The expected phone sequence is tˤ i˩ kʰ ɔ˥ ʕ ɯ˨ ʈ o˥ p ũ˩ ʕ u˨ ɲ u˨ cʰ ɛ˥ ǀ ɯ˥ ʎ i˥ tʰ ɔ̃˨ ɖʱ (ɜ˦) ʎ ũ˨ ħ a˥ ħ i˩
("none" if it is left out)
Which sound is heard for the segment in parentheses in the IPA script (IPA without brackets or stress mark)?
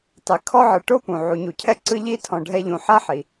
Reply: ɛ˦